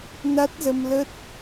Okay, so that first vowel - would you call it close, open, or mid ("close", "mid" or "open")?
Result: open